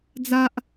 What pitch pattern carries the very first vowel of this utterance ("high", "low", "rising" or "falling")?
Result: high